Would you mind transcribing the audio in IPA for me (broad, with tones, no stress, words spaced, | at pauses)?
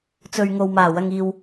t͡sɵ˨ɥŋo˨wmaː˨˩ wɐ˨ŋiː˨w